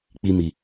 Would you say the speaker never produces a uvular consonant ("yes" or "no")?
yes